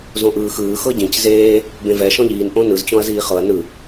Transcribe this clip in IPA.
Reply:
z õ ʔ ɯː x ɯː x ɤ ɟ ĩ c z eː | b ẽ v ɛ ʃ ɔ̃ ʎ iː n ʔ õ n ɯ z t͡ɕ ɔ̃ ɐ̯ z iː χ ɤ ɐ̯ n ɯ

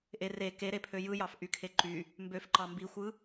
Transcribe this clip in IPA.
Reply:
ʔ e r e k e ɾ e pʰ ø j ɯ j ɑ f ʔ y kʰ e ǃ y | m b ø f ǃ ɑ m b i xʷ ɯ

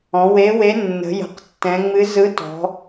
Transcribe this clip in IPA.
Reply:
ɔ̃˩˧ w e˧˥ w e˧˥ nː ə̤˩˧ j ə̤˩˧ q tː ɛ̃˩˧ ŋ͡m ɨ˧˥ z ɯ˧˥ t ɔ̤˩˧

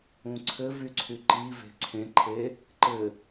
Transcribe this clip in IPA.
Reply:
ũ ǀʰ ɘ v y ǀʰ y ǃ i v e̤ ǀʰ ẽ ǃʰ e | ǃ ɘ

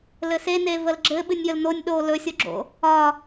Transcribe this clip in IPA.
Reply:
l ɘ s e n e v ə l ɡ͡ǁ ɘ ɓ ɨ nʲ j ə l n o nʲ ɗ o l ɵ sʲ o ɡ͡ǁ o̰ | ɒ

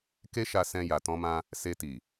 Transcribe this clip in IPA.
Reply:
k e˦ ʃ a˧ s ɛ̃˧ j a˨ t ɔ̃˧ m ã˧ | s e˧ t i˨

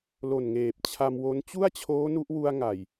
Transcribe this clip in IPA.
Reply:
l o˨˩ n ŋ eː˨˩ p̚ t͡ɕʰ a˧ m w o˦˥ n t͡ɕ u˥˩ a̯ t͡ɕʰ oː˦˥ n u˦˥ ʔ w u˧ a̯ ŋ a˨˩ j

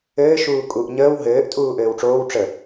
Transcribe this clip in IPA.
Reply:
ɘː ʃ uː kʼ u ʔ ɲ əː w ɦ ɘː ʔ tʼ uː ʔ ɘː w ʈ͡ʂ oː w ʈ͡ʂ ə

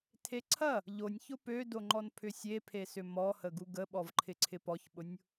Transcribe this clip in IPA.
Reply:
tʰ e ǀʰ ɐ | ʎ o nʲ ç ʊ p ø d o ŋ͡ǃ ɔ n pʰ ʏ sʲ e pʰ e s ʏ m ɔ h ə ɡ u ɡ ə ɓ ɔ v ǃʰ ɪ ǀʰ ɪ p ɔ ç ɓ ʊ nʲ

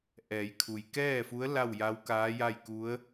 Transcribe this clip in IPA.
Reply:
ʔ ɛː˩˧ j kʰ u˩ j k ɛː˥˨ f u˧˥ ə̯ l a˥˨ w j a˧˥ w k aː˧˥ j a˥˨ j k u˧˥ ə̯

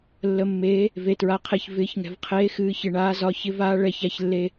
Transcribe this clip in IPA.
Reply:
lː ə˩ mː eː˩˧ | v e˩ t ɹ a˩ qʰ e˩ ç v ɪː˩˧ ç ŋ ɛ̤˩ v qʰ eː˩˧ x ɨː˩˧ ç ɪ˩ ɳ aː˩˧ z ɒ˩˧ ç ɪ˩˧ v aː˩˧ ɭ ɛ˩ ç a˩ ç lː e˩

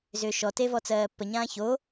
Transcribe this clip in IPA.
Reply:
z ʏː ʃ ɔ t e v ɔ t͡s ɜː pː ə ɲ ãː ç o

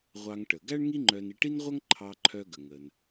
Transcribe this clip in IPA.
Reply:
ʁʷ ɑ˧ ŋ ʈ ə˩ ɡ æ˥ ɳ ŋ i˥ ŋ͡ǃ œ˧ n i˧ ʈ i˥ n ʁʷ ʌ˥ ŋ ǃʰ ɑ˧ ǃʰ œ˧ ɡ ə˩ ŋ ə˩ n

